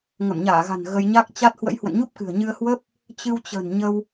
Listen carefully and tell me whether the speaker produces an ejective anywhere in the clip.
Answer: no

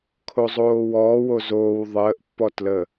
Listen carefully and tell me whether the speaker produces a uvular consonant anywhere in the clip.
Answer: no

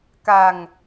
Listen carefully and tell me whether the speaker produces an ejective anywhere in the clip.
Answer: no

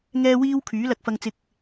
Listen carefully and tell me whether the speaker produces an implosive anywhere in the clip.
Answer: no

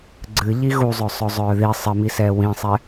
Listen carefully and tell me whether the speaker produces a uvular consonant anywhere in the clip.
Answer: no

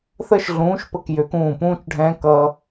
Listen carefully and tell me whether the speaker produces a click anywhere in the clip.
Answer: no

